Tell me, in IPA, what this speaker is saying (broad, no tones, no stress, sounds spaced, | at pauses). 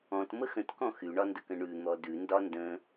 ɔ̃ t m ə x ə̃ t k ɔ̃ x y ɳ ɒ n d ə k ə̃ ɳ ʉ n̪ ɔ d ʉ n d ɒ n d ə̃